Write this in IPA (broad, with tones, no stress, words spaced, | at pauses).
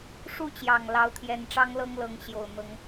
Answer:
ʂu˥˨t͡ɕjɑ˨˩ŋlɑ˨˦ʊ̯ t̪ʰjɛ˨˦nʈ͡ʂɑ˦ŋlɤ˦ŋ lɤ˨˦ŋɕjo˨˩ʊ̯ n̪ɤ˨˦ŋ